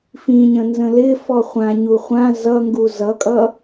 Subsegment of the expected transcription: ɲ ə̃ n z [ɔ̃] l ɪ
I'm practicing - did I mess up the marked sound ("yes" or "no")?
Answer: yes